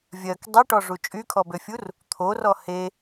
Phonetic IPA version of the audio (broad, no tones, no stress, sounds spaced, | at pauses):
vʲ ɜ k dˤ e ʈ ɔ ʐ u t͡ʃʼ y kʰ ɔ b ø fʲ u r | t̪ʰ o r ɔ h e